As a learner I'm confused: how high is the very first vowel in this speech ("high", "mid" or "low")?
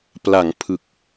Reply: low